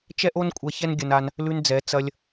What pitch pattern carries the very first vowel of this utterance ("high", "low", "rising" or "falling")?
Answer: high